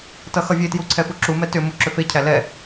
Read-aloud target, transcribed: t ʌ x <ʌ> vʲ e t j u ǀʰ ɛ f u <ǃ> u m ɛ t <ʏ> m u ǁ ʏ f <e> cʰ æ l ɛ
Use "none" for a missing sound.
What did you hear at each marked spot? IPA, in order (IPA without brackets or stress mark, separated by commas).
ʌ, ǁ, ʏ, e